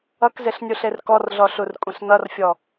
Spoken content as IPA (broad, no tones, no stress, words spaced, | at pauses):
ʌkzeɬnʲuɬer kɔrɮɔɬurkʷʼẽɬ nʌrfʲɔ